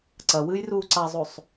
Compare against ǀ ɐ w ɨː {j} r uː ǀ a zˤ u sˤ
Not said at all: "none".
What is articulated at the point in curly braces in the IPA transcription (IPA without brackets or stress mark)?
j